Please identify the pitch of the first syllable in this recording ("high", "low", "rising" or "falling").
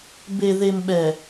low